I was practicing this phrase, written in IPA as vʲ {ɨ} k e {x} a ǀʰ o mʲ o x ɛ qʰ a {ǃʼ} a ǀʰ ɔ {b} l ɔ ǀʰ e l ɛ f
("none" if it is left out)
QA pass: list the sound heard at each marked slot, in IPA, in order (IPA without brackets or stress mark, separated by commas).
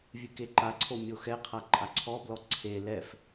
ɨ, ǃ, ǃʼ, b